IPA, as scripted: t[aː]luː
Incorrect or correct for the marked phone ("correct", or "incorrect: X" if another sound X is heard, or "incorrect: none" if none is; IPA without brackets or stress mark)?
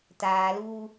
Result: correct